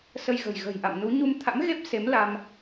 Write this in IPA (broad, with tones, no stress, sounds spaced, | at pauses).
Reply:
s ə˧ j ɣ ə̤˨˩ j ɣ ə̤˨˩ j ʔ a̰˧˨ m n u˨˦ ɲ u˧ m t̪ʰ a̰˧˥ m ɣ e˦˥ p̚ s e˨˦ m l a˧ m